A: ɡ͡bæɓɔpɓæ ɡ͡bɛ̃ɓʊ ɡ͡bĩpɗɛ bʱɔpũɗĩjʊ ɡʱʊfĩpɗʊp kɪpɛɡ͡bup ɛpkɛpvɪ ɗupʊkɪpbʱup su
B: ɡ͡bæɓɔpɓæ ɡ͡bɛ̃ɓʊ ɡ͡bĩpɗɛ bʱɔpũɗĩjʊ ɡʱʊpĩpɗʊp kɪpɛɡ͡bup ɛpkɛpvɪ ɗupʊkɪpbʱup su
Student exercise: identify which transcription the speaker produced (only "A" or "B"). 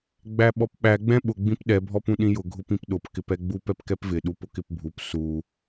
B